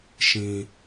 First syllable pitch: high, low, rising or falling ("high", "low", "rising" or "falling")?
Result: high